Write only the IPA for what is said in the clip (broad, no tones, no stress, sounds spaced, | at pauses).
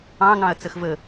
ɑ̃ ŋ ɑ̃ ɐ̯ t͡s ə x v ə